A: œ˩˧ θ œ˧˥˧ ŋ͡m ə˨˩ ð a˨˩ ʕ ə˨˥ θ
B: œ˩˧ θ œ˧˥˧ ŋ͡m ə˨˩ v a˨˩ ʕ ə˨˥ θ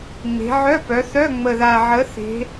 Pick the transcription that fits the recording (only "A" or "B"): A